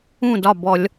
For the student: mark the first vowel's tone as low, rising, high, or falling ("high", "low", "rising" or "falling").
falling